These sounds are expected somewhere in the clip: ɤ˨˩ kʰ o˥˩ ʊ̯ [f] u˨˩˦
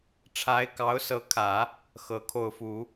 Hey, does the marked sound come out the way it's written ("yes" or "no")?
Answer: yes